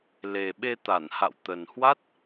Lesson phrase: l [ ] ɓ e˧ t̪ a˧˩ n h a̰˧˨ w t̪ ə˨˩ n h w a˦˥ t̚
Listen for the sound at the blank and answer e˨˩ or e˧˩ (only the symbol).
e˨˩